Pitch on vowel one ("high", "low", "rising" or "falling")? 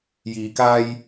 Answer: low